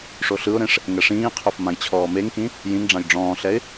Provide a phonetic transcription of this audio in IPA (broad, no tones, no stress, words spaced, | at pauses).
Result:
ʂoɬɯʊ̯ɾẽʂ | ŋɛʂĩːqʰof mãjt͡ɕʰɔːmeŋkĩ | jĩŋɖ͡ʐãj ɖ͡ʐɔ̃ːɬɛɪ̯